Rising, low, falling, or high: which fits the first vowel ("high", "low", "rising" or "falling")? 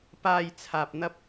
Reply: low